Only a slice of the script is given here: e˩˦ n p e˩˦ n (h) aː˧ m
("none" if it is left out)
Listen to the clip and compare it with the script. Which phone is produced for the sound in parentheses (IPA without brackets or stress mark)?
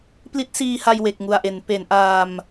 ʔ